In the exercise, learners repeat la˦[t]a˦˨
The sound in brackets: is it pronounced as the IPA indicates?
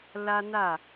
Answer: no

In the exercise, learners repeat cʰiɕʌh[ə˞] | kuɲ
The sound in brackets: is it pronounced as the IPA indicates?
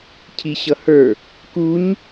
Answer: yes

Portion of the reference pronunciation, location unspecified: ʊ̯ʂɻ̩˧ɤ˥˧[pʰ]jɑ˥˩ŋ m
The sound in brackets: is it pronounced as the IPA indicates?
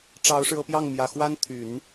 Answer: no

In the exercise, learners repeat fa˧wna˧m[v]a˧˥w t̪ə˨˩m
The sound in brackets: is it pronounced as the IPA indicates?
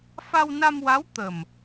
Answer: no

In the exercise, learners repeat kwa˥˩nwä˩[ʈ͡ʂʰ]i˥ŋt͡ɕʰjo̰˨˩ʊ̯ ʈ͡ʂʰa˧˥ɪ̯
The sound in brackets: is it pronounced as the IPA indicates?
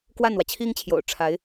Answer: no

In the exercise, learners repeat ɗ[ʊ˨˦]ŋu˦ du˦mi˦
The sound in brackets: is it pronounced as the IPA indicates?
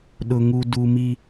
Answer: no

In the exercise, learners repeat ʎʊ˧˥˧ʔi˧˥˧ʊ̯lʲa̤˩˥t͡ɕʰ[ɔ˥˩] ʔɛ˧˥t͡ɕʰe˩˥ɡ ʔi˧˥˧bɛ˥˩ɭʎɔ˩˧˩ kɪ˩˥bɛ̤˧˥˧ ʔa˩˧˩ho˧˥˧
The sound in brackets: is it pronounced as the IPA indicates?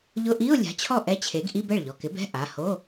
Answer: yes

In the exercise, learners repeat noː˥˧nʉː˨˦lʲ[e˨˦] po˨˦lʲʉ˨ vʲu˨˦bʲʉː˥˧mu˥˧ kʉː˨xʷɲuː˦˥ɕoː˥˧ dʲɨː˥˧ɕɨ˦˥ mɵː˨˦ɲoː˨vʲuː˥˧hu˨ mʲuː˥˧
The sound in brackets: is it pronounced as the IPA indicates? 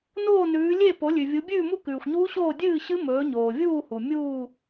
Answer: no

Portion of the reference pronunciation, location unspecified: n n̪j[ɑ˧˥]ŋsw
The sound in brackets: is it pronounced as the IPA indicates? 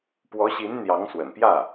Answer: yes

